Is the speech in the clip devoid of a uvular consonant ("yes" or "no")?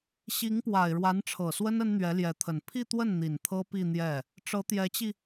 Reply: yes